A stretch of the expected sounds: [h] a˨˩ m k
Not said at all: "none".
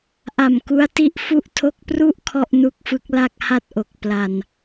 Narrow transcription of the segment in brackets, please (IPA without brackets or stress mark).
ʔ